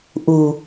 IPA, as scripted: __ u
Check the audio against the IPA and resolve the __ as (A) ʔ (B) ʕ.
A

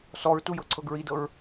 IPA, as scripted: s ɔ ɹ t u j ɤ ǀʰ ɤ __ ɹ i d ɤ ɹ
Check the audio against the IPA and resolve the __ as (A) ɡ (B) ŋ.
A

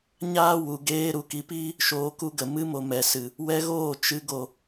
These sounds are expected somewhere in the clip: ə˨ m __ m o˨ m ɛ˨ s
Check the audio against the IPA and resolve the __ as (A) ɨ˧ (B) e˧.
A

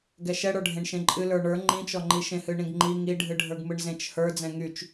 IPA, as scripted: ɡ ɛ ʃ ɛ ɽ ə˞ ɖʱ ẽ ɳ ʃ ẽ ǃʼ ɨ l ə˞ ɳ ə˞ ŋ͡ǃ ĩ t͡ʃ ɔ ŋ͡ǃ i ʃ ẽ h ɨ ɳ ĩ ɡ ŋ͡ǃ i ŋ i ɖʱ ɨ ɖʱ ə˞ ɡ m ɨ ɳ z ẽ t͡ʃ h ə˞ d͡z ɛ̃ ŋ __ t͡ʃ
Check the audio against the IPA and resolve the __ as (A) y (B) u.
A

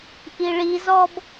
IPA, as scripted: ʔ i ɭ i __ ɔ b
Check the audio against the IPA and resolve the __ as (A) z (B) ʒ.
A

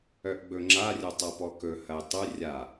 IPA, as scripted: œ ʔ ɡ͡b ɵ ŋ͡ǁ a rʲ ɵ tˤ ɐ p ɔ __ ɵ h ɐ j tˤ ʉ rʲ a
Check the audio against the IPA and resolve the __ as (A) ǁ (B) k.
B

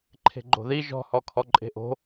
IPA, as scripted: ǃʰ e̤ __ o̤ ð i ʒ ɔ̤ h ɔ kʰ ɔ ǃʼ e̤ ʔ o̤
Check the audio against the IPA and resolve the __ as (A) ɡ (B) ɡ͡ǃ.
B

